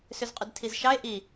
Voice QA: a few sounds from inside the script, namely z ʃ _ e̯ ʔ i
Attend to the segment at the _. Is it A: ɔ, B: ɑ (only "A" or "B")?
B